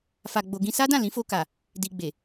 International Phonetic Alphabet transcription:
f a˧ ɡ͡b o˧ ɡ ĩ˧ s a˦ d ã˦˨ l ĩ˨˦ f o˧ k a˨ | d i˧ ɡ͡b e˨

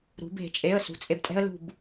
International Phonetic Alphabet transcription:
ɾ ṳ˩˧ b e̤˧˩˧ t͡ʃʼ e˩˧˩ ə̯ s ṳ˩˧˩ t͡sʼ e˧˩ b tʼ ɛ̤˥ ə̯ l ṳ˧˩ b

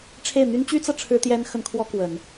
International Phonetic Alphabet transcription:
ʈ͡ʂʰ e˥˩ ɪ̯ n̪ y˥ n t͡ɕ y˥ t͡s ɤ˨ ʈ͡ʂʰ ɻ̩˥ t̪ j ɛ˥ n x ə˥ n kʰ w ɔ˥ k w ə˨˩˦ n

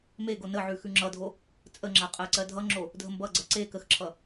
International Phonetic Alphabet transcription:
m e ɡ o n ə ʕ ʉ x ʉ ŋ͡ǁ ʌ dʱ o | t͡sʼ ə ŋ͡ǁ a qʼ ɜ ǀ ɜ dʱ ʌ ŋ͡ǁ o | dʱ ə m b ʌ ɡ͡ǀ ɜ ǀ e k ə x ǁʰ ʌ

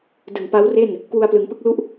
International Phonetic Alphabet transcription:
d ɯ˨˩ ŋ p a˦˥ w r e˥˩ n | k w u˧ a̯ p l ɯ˩˦ ŋ p ɯ˦˥ k̚ l u˥˩ ʔ

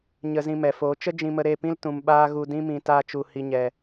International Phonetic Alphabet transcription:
ɲ ə˧ z ĩ˧ m ɛ˨ f oː˨˦ t͡ʃ ə˦ d͡ʒ ĩ˧ m ə˧ ɾ e˦˨ p ĩ˦ l t ũ˨ m ɓ aː˦ ɣ u˧ d ĩ˦ m ĩ˧ t aː˧ t͡ʃ u˨ h i˨ ɲ ɛ˨

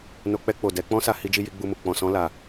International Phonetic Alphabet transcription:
n o˧ k͡p ɛ˧ k͡p o˨ d ɛ˨˦ k͡p ɔ̃˦ s a˧ h i˦ d͡ʒ i˦ j i˧ ɡ͡b u˧ m u˨ k͡p ɔ̃˨ s ɔ̃˨˦ l a˧

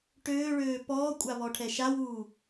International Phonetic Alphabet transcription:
ʈ øː ɭ øː p ɔː kʷʼ a β ɔ ʈʰ ɛ ʃ a w uː

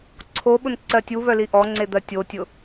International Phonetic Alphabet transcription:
ǀʰ o ɓ ʊ n ǀ ɜ tʲ u β œ l i ʔ ɔ ŋ͡ǀ e d̪ ɜ tʲ o tʲ ʊ

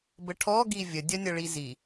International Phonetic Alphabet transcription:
b ə ʈʰ ɔ ɡ i vʲ ə dʲ ɐ nʲ ɐ ɭ i z i

